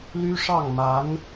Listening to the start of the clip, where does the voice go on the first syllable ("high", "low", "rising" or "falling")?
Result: high